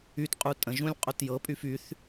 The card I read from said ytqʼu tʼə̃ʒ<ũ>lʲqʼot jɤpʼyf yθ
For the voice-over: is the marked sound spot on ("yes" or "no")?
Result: yes